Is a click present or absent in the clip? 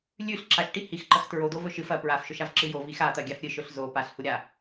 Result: present